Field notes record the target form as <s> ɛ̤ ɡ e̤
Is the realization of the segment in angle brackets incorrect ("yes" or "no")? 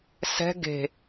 no